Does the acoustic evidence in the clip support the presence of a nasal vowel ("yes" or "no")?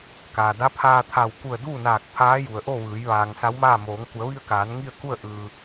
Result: no